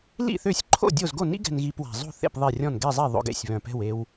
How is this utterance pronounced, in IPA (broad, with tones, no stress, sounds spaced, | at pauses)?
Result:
l ḭ˥˨ θ ø˥˨ sʲ ǃʰ o̰˥˨ dʲ o˥˨ z ɡ o˥˨ n ḭ˥ ɡ ɛ̤˧ n ɣ i˧ p w a̤˨˩ zˤ o̤˥˨ θ ḛ˥˨ p ðˤ e˥˨ rʲ ɔ̃˥˨ n ɡ ɛ˥˨ zˤ ɛ˥˨ ðˤ o̰˧ ɡ ḛ˨˩ sʲ β œ̃˨˩ p ɛ̤˥˨ w e˧ w